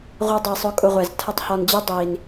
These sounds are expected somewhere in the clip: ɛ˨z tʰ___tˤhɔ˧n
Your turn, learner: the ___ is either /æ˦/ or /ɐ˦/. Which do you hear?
ɐ˦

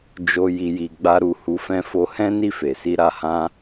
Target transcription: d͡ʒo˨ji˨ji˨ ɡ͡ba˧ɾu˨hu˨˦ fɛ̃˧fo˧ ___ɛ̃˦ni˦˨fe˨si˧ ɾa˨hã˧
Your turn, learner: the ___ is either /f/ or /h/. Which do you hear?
h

